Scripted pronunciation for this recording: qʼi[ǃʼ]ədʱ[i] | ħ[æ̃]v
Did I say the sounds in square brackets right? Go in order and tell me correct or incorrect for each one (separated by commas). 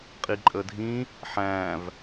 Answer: correct, incorrect, correct